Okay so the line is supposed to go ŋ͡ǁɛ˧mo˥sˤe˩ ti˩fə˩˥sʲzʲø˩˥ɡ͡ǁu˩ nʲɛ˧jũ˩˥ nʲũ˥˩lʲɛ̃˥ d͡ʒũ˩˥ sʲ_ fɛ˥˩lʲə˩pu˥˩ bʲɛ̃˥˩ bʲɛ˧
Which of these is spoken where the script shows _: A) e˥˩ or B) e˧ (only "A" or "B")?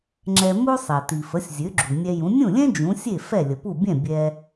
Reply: A